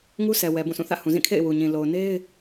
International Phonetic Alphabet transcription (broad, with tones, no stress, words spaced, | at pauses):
ŋu˦sʰɛ˨ wɛ˨bũ˦˨sʰũ˦˨θä̰˦˨ hũ˨zĩ˦˨kʰḛ˦˨ɪ̯ wu˨ɲĩ˨ lo˨ʊ̯ne˦ɪ̯